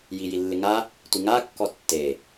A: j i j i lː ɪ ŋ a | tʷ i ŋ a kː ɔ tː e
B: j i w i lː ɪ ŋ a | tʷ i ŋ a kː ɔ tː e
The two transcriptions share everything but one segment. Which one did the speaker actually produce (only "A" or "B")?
A